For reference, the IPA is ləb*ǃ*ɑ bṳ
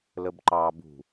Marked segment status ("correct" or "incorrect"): correct